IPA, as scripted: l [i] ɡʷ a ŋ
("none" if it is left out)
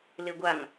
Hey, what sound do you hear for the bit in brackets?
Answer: e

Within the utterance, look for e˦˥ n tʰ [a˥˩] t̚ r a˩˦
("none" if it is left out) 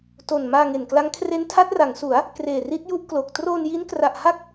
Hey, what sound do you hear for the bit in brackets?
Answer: a˦˥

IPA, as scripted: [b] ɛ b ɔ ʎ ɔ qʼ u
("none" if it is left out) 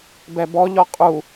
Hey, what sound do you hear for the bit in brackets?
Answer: b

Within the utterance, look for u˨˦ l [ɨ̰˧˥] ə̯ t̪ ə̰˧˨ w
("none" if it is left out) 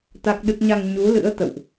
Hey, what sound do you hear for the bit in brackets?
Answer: ɨ̰˧˥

